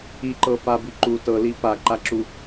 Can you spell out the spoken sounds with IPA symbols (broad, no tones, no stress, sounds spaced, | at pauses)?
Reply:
i ǃ ɤ f a b i ǃ u t ɤ l i p a ǃ a ǁ u